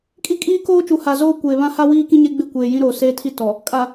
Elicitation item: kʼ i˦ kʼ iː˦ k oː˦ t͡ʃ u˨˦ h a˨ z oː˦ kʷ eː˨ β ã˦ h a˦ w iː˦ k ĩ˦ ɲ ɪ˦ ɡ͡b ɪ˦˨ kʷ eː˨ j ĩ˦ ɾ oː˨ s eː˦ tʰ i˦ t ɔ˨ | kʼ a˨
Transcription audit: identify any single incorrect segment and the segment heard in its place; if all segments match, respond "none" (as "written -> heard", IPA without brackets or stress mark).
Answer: none